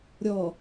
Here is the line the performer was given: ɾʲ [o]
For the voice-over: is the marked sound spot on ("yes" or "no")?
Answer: no